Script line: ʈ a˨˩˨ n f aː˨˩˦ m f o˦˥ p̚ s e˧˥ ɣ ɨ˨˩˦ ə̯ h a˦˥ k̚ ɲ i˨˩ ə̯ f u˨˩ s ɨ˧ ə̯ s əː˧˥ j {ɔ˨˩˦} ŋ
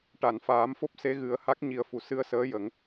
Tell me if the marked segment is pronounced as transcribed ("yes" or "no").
no